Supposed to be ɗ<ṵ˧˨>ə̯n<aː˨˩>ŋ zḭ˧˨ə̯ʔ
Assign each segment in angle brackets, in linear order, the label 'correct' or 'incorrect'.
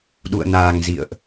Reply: correct, correct

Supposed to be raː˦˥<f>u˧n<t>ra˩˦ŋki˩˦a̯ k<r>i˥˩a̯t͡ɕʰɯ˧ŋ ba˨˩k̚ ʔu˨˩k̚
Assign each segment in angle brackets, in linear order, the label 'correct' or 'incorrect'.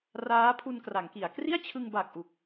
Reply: incorrect, incorrect, correct

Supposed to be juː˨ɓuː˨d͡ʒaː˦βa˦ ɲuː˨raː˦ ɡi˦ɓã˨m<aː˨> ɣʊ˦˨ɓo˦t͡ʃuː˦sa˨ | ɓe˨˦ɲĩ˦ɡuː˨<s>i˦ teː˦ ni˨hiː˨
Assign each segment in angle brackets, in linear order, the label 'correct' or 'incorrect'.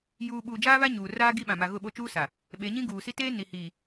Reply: incorrect, correct

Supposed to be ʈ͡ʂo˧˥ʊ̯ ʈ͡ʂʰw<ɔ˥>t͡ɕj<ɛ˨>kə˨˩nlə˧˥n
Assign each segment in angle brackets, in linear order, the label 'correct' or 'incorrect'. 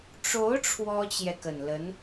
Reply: correct, correct

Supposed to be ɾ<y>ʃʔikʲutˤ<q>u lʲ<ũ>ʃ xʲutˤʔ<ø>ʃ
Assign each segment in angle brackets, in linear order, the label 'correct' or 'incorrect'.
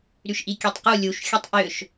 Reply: correct, correct, incorrect, correct

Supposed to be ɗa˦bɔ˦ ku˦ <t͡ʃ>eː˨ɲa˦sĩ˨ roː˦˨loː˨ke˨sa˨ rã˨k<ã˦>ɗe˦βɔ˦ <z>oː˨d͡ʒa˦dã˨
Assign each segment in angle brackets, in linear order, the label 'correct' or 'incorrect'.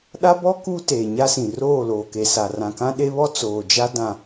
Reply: incorrect, correct, incorrect

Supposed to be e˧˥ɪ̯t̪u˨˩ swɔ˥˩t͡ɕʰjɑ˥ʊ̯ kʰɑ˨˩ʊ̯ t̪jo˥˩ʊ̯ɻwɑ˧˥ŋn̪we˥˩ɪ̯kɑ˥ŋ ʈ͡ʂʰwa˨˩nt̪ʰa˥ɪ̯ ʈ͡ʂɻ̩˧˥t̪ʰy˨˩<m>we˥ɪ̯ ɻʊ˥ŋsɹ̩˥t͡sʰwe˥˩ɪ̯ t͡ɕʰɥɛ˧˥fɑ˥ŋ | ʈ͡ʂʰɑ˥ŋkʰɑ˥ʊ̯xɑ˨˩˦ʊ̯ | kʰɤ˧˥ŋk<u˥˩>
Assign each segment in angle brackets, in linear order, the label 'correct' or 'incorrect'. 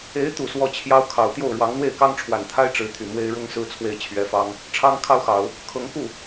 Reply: correct, correct

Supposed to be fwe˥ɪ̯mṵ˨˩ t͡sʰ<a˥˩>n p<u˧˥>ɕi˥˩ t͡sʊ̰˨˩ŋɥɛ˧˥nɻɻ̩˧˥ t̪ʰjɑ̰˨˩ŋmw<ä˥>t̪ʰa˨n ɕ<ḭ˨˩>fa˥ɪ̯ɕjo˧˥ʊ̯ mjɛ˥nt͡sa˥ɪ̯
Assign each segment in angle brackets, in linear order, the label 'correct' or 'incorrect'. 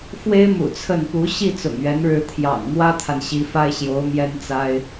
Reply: incorrect, correct, correct, incorrect

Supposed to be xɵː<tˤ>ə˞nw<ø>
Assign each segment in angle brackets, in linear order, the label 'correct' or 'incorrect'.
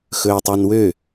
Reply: correct, correct

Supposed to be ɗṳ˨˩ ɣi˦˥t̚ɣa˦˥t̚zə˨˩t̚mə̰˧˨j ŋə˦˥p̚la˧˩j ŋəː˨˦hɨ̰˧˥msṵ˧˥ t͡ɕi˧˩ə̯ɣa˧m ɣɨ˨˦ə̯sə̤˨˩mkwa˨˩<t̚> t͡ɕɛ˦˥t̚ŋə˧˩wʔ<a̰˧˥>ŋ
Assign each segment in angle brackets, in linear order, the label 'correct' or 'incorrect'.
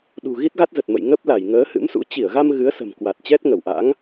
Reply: correct, correct

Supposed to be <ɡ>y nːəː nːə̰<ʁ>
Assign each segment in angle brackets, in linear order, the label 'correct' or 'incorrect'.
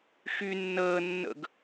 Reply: incorrect, incorrect

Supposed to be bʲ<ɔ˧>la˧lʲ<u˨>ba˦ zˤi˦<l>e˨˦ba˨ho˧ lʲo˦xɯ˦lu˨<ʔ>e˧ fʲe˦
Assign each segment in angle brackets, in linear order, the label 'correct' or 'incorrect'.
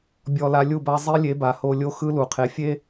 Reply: correct, incorrect, incorrect, incorrect

